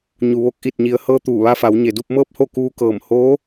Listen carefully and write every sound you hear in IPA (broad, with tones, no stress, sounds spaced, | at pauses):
ɲ u˩ ʋ o˧˥ k̚ ʔ i˧˩ t̚ ɲ i˩˧ ə̯ h ɤː˧ t̪ uː˧˩ ʋ a˧ f a˩˧ w ɲ e˩ d u˥˨ p̚ m ɤː˥˨ p̚ h o˥˨ k uː˧ k ɤː˧˩ m h oː˧˥